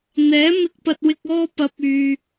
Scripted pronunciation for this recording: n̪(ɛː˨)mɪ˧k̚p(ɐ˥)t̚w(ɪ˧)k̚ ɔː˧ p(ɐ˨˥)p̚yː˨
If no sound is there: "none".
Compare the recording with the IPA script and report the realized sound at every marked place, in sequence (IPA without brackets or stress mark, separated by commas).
ɛː˨˥, ɐ˧, ɪ˧, ɐ˨˥